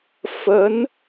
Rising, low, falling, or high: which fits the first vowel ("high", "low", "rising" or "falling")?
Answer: rising